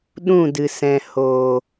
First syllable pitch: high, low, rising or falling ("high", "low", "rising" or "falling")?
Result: falling